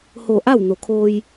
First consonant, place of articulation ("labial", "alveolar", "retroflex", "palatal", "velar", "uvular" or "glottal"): glottal